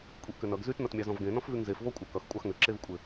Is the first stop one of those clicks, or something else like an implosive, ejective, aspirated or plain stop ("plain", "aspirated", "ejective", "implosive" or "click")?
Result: ejective